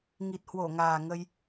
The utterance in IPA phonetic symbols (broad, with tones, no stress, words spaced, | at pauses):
ŋi˨˩t̚hwo˧˩ŋaː˨˩ ŋə˧j